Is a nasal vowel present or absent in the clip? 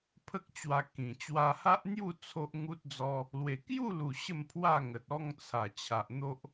present